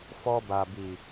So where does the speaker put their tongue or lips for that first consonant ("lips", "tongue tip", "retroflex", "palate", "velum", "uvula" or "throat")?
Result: lips